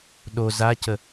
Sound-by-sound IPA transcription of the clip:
ɗ o z a c ə

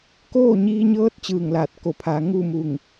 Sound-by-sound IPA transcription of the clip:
k oː˥˨ ɲ iː˧ ɲ ɤː˧˥ t̚ t͡ɕ ɯː˧˩ ŋ l aː˧˩ t̚ k o˧˩ pʰ aː˩˧ ŋ u˥˨ m u˧˩ ŋ

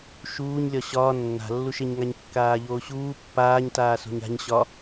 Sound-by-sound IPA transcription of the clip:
ʃ uː ɲ lʲ ɒ ɕ ɒː nː a̤ lː u ʃ e ɲ ŋ a ɲ kː aː ʎ oː ɕ uː pː aː ɲ t aː s o̤ ɲ a̤ ɲ ɕ ɒ

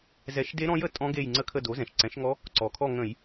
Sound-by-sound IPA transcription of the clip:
z ɛ˧˩˧ ʃ d e˦˥ ɾ ɔ̃˦˥ j ə˧˩˧ tʼ ɔ̃˦˥ ɡ e˦˨ j ŋ͡ǀ ə˦˨ kʰ ə˦˨ d o˩˥ z ɛ̃˩ ʃ ǀ ɛ̃˩˥ ʃ ŋ ɔ˦˥ | ǀ ɔ˩ kʰ ɔ˦˨ ŋ ə̃˧˩˧ j

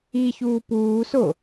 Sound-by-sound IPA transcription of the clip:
i ç uː p uː s o

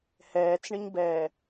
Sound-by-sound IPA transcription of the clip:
h ɛː t͡s ɳ ə ɲ b ɛː

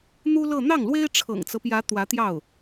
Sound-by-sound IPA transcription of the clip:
n̪ u˥ l ɤ˥˧ n̪ ɑ˥˩ ŋ l w e˥ ɪ̯ ʈ͡ʂʰ ɤ̰˨˩ ŋ t͡s ɤ˦ p j ä˧˥ t̪ w ä˧˥ t̪ j ɑ˥˩ ʊ̯

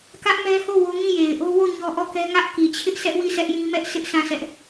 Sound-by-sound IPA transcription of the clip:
k ä˦ ʔ m ɛ˦ h o˦˨ w o˦ ŋ ĩ˦˨ j e˨ ɪ̯ ʔ o˦ w o˦˨ ɲ ɔ˦ ʔ ɔ˦˨ k ɛ˦ ŋ ä˦ ʔ k i˨ t͡ɕʰ ɪ˦ ʔ sʰ ɛ˦ ʔ w i˦˨ sʰ ɛ˦ ʔ j ĩ˦ m ɛ˦ ʔ sʰ ɪ˦ ʔ sʰ ã˦˨ s ɛ˦ ʔ

